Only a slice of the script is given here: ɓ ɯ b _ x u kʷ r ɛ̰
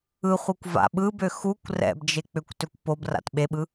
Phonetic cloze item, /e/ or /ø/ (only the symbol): ø